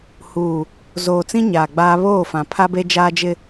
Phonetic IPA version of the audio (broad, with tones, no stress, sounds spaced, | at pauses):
h uː˨ | z oː˨ t͡s ĩ˦ ɲ aː˨ ɡ͡b aː˦ β oː˦˨ f ã˨ pʰ a˦ b e˦ d͡ʒ aː˦ d͡ʒ ɪ˦